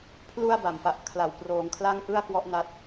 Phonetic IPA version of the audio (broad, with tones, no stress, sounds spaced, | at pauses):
pʰ l u˧ a̯ b a˨˩ m p a˨˩ ʔ kʰ l a˨˩ w p r oː˩˦ ŋ kʰ l a˥˩ ŋ ʔ ɯ˥˩ a̯ k w ɔ˦˥ ʔ n a˦˥ t̚